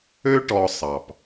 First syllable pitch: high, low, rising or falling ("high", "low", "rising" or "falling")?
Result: high